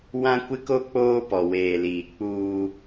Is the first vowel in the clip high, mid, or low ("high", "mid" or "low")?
low